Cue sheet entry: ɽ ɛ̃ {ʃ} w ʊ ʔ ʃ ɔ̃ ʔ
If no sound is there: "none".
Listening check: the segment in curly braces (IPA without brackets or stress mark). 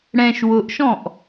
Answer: ʃ